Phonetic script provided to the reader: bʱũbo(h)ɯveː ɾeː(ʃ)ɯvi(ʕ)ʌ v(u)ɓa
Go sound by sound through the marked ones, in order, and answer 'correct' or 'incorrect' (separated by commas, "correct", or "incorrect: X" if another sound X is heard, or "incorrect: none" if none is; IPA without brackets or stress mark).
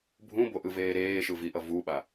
incorrect: ʔ, correct, incorrect: ʔ, correct